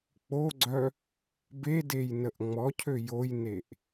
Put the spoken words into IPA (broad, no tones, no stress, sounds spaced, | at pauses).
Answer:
k͡p o ɡ͡ǀ œ | b e d e j n ə ʔ ŋ͡m ɔ cʰ ø j o j n e ʔ